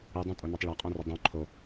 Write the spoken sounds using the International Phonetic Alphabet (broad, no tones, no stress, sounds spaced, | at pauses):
ɨ dˤ õ tʼ o n ʌ tˤ ɭ a qʼ õ r ə dˤ õ ǃʰ o